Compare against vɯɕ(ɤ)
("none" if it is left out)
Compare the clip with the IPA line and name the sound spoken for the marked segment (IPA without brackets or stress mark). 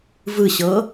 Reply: ɤ